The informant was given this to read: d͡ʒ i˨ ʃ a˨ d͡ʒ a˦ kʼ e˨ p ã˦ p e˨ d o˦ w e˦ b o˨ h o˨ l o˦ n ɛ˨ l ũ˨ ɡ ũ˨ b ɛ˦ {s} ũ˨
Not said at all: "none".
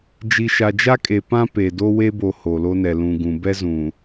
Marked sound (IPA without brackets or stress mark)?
z